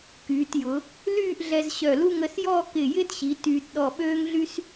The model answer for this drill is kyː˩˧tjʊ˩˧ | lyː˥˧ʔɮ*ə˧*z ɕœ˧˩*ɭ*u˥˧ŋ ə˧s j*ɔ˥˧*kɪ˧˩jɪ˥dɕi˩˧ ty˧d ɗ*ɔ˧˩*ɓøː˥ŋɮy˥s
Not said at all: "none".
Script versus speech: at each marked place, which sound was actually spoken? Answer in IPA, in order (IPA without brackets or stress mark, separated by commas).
ɛ˧, l, ɔ˥˧, ɔ˧˩